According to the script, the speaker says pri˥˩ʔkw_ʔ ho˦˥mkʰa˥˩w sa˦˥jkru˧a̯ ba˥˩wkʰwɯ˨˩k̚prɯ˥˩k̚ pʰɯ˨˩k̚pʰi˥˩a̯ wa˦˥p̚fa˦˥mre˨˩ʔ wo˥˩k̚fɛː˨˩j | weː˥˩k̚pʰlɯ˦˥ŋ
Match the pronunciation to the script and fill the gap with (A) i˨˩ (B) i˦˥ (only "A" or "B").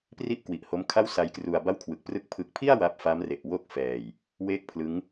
A